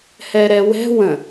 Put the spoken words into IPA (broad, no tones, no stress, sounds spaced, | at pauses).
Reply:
h ɛ ɾ ɛ w ɛ̤ w ə̃